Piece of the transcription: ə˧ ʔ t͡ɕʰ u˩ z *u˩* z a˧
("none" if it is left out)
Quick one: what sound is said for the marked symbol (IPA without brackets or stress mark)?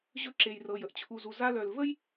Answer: u˩